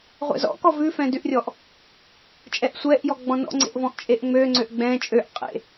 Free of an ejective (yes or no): no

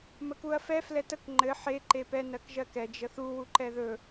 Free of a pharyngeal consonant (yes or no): no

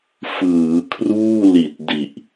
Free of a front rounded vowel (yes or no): yes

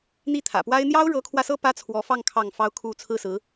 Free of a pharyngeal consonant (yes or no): yes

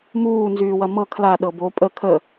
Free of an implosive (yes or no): no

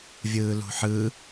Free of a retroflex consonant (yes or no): yes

